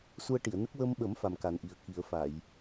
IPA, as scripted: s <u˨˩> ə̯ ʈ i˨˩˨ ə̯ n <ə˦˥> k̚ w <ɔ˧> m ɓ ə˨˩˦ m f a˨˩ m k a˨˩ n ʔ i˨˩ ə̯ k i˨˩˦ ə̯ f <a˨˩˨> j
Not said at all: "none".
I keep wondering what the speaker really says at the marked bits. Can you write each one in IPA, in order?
u˧, ə˦˥, ə˧, a˨˩˨

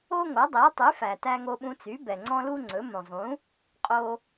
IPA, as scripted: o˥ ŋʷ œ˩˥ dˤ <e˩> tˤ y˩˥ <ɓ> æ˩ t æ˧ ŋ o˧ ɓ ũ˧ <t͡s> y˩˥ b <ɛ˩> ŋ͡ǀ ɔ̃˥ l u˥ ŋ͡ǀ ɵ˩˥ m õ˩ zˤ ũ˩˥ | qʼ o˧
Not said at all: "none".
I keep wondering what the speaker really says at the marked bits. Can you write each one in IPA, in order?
e˩˥, f, t͡s, ɛ˩

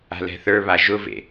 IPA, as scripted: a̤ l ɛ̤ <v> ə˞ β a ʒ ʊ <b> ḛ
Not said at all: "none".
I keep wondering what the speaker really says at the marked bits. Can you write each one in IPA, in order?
θ, v

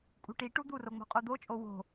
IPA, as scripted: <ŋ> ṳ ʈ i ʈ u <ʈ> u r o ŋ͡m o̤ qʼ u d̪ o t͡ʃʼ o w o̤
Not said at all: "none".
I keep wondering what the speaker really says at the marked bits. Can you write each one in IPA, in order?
kʼ, d̪

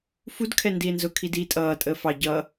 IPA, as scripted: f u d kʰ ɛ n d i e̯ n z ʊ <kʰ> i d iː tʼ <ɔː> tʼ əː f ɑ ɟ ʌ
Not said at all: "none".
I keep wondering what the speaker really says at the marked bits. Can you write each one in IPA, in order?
kʰ, ʌː

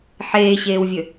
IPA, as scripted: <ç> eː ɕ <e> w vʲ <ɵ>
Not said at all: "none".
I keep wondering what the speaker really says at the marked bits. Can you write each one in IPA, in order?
ħ, eː, ɵ

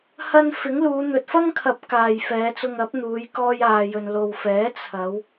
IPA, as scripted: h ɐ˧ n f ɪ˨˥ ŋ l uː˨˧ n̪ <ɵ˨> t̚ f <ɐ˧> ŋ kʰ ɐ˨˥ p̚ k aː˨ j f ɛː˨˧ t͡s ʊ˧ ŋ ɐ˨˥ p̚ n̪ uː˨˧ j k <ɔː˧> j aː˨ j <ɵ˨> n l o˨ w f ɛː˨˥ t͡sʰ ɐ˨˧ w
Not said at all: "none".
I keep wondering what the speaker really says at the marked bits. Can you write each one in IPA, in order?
ɵ˨, ɐ˥, ɔː˧, ɵ˨

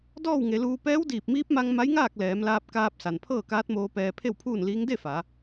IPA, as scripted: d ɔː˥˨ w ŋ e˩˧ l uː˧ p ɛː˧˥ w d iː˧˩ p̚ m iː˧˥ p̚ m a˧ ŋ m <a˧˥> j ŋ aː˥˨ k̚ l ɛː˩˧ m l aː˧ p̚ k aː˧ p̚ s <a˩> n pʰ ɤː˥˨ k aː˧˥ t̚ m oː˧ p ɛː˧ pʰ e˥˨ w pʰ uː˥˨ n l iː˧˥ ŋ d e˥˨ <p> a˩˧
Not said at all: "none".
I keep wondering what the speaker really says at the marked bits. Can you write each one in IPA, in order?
a˧˥, a˩, f

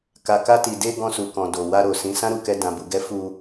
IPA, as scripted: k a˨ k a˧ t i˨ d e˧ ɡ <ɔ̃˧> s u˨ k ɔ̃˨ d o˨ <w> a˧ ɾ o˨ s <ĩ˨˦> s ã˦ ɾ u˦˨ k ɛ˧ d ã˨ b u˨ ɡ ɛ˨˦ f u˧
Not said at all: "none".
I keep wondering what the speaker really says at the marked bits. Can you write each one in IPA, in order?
ɔ̃˧, w, ĩ˨˦

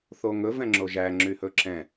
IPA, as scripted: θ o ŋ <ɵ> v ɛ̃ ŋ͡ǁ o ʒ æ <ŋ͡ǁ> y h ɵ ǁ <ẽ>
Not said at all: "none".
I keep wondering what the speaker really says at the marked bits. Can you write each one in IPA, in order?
ɵ, ŋ͡ǁ, ɛ̃

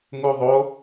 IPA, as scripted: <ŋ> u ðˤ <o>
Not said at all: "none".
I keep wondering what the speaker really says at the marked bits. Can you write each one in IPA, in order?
ŋ, o

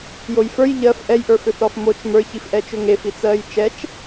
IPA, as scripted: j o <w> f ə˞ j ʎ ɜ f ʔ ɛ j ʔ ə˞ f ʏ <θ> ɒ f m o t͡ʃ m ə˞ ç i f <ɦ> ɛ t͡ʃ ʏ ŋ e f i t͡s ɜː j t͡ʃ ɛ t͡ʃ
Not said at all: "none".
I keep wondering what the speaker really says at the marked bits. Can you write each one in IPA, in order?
j, θ, ʔ

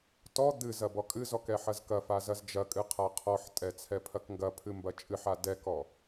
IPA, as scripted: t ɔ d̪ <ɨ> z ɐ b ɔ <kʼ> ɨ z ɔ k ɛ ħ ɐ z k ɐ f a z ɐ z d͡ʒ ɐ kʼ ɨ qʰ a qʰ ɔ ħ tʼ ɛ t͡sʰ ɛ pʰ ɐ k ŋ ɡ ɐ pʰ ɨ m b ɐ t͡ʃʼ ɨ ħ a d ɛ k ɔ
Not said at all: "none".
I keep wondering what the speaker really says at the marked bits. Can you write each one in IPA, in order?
ɨ, kʼ

